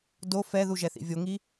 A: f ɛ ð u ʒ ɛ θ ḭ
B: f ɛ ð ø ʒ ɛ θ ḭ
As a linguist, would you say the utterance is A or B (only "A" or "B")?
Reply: A